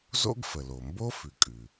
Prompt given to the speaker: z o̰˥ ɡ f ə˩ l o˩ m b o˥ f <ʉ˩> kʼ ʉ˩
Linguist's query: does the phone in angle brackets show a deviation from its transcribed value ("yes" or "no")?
no